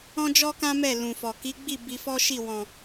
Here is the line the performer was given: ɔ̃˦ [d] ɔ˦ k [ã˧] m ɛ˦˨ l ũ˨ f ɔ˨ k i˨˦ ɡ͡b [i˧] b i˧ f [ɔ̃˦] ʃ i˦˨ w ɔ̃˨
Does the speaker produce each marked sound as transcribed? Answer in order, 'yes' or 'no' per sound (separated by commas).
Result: no, no, no, no